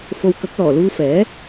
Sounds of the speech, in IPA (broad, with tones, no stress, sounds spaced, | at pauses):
f o˧ w k ɐ˨˥ k̚ l ɔː˨˩ l uː˧ f ɛː˨˥